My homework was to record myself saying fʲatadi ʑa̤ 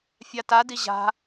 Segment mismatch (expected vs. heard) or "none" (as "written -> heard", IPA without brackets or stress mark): none